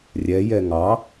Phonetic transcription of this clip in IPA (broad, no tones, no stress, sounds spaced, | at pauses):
rʲ ɛ j ɛ ŋ ɑ